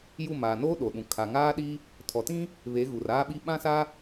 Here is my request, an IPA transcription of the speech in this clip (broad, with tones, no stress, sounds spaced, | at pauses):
j u˦˨ m aː˨ n oː˦ ɗ o˨ ɗ ũ˨ kʰ a˨ ŋ aː˦ ɗ i˦ | tʰ ɔ˨ t ĩ˦ | β e˨˦ ɣ u˨ r aː˦ ɓ i˦ ɓ ã˦ s a˦